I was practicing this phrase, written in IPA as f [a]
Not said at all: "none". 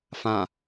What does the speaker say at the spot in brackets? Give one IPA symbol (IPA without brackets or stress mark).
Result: ã